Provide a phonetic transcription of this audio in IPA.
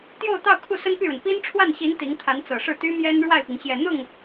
t̪ j o˥˧ ʊ̯ t̪ ɑ˥˧ ʊ̯ kʰ u˥˩ s ə˥ n p y˥˩ ɻ ə˩ n p i˥ n ʈ͡ʂʰ w a˥˩ n ɕ i˧˥ n t̪ i˧˥ ŋ t̪ʰ a˧˥ n t͡s ɤ˨˩ ʂ ɻ̩˥˩ t̪ y˥ m j ɛ˥ n ɻ w a˥˩ ɪ̯ p i˩ ŋ ɕ j ɛ˨˩ n̪ ʊ˥˩ ŋ

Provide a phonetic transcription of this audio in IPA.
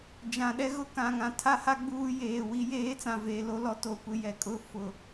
d͡ʒ ã˨ ɗ ɛ˦ ɣ ʊ˦ k ã˨ ŋ ã˨ tʰ a˦ h a˦ ɡ͡b uː˦ j eː˨ w i˦ j eː˦ t͡s ã˨ v eː˨ l o˦ l ɔ˦ t o˦˨ kʷ ɪ˦ j ɛ˨ kʼ ʊ˦ f ʊ˨

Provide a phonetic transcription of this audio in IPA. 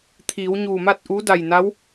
t̪ʰ iː˩˧ w ɲ uː˧˩ m a˥˨ t̚ ʔ u˧˥ d a˧˩ j n a˧˥ w

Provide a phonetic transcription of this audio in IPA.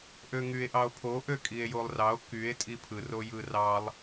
ʔ ø ŋ y e̯ ʔ ɑ o̯ pʰ o ʔ ø kʼ i e̯ j o lˠ r ɑ o̯ k y e̯ tʼ i pʰ ɯ r o j ɯ r ɑ lˠ

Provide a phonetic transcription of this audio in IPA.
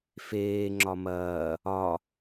f eː ŋ͡ǁ ɒ m ɐː | ɒ

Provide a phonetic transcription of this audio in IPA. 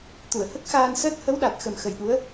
t̪ u˨˩˨ ə̯ h ə˦˥ k̚ x aː˧ n s əː˦˥ t̚ h ə˧˥ w ɗ a˨˩ t̚ x ə˨˩ m x ə˨˩ j ɗ u˧˥ ə̯

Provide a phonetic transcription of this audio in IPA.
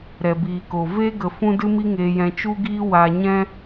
ɾ ɛ˨ b iː˨ k o˨ v e˦ ɡ ə˨ f ũ˧ d ɨ˦ m i˦ ŋ eː˧ j ɛ̃˧ t͡ʃ u˦ ɡ iː˦ w a˧ ɲ ɛ̃˦

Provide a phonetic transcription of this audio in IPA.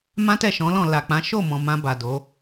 m ã˦ t ɛ˦˨ ʃ ɔ̃˨˦ l ɔ̃˦˨ l a˨ k͡p ã˨˦ ʃ o˦˨ m ɔ̃˨ m ã˧ b a˨ d o˨˦

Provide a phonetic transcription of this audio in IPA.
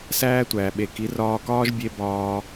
s æː˦ tʷ æː˨ ɓ e˨ k i˨˦ r ɒː˧ k ɒː˦ ʒ bʲ e˧ b ɒː˧

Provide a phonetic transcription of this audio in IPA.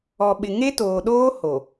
ɔ˨ ɓ ɪ˨ ŋ e˦ t oː˨ ɗ oː˦ h o˨

